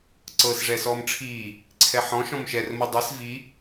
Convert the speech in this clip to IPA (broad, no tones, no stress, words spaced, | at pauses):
ǀɤs ʐɛsɔːmʈ͡ʂʰiː | ǀʰɛħɔ̃ ʃɔ̃mʃɛr mɤdˤes vi